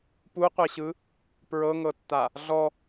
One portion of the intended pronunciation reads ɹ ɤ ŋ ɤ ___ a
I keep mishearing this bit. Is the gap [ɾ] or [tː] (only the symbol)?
tː